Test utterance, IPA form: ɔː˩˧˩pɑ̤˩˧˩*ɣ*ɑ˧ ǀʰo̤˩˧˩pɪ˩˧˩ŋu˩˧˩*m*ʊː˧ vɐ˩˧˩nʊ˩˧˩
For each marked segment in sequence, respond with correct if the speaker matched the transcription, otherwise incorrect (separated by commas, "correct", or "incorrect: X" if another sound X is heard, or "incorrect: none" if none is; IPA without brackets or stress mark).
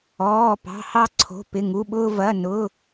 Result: incorrect: h, incorrect: ɓ